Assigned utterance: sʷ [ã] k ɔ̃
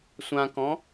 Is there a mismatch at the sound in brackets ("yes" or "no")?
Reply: no